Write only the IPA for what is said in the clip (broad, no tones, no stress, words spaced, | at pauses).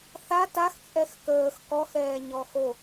θa tax t͡ʃʼɛxkəːx kɔxɛː ɲɔxo